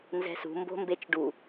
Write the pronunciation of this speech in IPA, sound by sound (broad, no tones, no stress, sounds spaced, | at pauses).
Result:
n z ɛ̤ s ṳ m b o̤ m b e t͡ʃ ɖ u